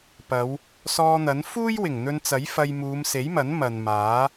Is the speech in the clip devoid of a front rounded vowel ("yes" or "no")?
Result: yes